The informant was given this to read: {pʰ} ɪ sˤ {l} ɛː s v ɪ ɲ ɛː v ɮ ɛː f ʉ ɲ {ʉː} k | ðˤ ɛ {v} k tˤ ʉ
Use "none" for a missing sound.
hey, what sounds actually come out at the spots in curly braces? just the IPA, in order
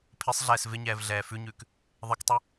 pʰ, ɮ, ʉː, none

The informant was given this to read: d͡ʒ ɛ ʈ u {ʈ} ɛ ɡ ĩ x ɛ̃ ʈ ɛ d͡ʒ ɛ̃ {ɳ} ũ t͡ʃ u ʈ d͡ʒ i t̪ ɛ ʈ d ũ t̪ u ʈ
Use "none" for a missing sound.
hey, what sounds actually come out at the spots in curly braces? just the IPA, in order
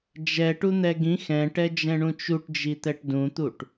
n̪, ɳ

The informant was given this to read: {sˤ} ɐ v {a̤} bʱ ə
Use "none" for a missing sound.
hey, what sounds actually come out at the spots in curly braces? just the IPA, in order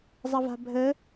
zˤ, a̤

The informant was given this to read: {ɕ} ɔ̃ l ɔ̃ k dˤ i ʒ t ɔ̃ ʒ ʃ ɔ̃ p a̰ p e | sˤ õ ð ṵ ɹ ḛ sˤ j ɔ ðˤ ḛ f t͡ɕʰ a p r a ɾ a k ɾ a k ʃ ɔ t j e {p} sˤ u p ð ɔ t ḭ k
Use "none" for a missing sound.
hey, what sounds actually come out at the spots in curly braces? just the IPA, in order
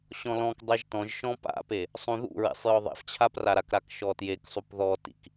ɕ, k

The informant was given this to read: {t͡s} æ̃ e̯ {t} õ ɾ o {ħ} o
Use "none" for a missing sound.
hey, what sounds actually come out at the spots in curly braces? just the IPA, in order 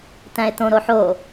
t, t, ħ

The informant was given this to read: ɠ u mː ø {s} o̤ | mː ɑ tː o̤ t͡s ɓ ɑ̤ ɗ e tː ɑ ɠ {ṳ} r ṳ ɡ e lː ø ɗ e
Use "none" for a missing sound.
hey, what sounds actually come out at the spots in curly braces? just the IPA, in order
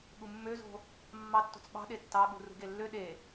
z, ṳ

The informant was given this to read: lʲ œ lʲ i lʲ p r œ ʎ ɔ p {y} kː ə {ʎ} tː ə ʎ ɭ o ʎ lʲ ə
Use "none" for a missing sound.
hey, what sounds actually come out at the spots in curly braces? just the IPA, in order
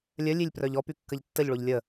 y, ʎ

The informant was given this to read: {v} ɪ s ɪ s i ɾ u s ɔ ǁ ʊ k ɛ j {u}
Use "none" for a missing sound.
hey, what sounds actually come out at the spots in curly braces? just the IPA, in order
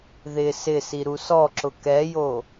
ð, o

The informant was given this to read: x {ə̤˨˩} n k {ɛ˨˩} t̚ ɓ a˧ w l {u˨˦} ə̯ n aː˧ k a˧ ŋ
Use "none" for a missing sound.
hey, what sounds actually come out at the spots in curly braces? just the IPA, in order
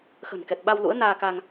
ə̤˨˩, ɛ˨˩, ṵ˧˥

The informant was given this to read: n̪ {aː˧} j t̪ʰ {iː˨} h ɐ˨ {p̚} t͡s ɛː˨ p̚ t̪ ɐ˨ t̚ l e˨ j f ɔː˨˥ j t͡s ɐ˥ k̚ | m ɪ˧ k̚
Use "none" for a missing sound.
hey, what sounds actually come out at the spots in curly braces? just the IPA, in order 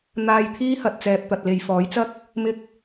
aː˧, iː˥, t̚

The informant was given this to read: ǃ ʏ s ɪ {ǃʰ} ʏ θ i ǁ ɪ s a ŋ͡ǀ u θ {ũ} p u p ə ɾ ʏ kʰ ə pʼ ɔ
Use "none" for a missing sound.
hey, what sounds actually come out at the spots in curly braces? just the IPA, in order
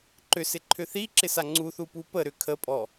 ǃʰ, u

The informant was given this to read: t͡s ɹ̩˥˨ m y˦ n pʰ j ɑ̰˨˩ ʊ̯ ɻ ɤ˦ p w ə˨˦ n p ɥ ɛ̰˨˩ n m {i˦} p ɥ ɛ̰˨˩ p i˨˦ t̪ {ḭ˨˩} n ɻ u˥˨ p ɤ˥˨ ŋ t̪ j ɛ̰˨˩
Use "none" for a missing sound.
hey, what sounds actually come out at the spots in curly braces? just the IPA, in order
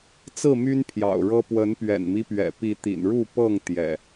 i˦, ḭ˨˩

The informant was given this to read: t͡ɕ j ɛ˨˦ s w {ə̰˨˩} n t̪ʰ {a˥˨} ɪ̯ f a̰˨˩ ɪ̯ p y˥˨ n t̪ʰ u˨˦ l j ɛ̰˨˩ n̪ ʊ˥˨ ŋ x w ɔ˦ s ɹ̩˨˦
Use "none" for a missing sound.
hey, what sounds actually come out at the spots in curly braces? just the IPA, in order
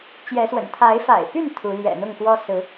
ə̰˨˩, a˨˦

